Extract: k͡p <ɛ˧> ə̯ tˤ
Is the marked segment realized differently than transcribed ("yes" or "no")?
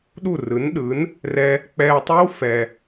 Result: no